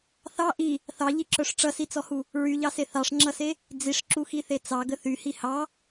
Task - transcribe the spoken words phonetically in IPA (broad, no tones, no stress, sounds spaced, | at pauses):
θ ɑ ʔ i | θ ɑ ʎ i ǁ œ ʂ ʈ͡ʂ ʌ s i t͡s ɔ h u | ɹ y ʎ ɑ s e θ ɑ ʂ ŋ͡ǁ ʌ s e | d͡z i ʂ ǁ u x i θ e t͡s ɑ ɡ ə θ y h i h ɑ